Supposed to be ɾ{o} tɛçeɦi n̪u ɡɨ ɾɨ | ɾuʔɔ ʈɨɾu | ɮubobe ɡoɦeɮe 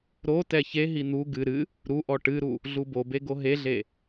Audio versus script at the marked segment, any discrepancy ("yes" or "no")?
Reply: no